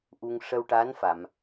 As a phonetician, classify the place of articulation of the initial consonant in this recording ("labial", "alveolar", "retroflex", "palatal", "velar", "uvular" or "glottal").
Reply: glottal